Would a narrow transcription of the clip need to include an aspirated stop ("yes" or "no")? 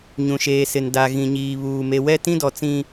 no